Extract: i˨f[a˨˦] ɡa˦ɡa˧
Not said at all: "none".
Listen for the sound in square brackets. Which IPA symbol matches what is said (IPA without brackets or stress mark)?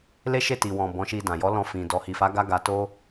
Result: a˨˦